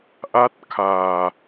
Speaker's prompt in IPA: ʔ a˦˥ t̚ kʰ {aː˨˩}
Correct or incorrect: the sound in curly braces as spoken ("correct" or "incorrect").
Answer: correct